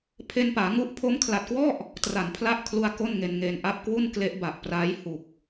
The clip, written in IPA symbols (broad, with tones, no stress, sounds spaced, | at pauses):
pʰ e˧ n p aː˩˦ ŋ u˦˥ ʔ pʰ o˦˥ m kʰ l a˨˩ t̚ k w ɔ˥˩ ʔ | t r a˩˦ n pʰ l a˦˥ ʔ kʰ l u˧ a̯ k o˥˩ n ŋ e˧ n ŋ eː˧ n ʔ a˦˥ p̚ k w u˥˩ n k l e˦˥ ʔ b a˨˩ ʔ p r aː˦˥ j h u˨˩ k̚